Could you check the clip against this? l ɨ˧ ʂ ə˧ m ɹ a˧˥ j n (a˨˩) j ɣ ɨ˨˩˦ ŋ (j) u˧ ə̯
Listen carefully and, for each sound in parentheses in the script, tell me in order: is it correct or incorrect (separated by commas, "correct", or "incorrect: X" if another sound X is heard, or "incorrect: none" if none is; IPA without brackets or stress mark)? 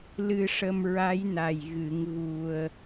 correct, incorrect: ɣ